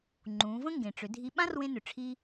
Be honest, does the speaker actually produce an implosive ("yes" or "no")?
yes